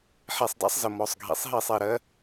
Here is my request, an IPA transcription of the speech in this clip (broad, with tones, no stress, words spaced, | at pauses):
ħe˧˩sˤda̰˦˥sˤzə˧˩ mɔ˩˧˩sˤɡʱḭ˩˧˩sˤɦi˥˩sˤ i˥˩ ɾɜ˦˥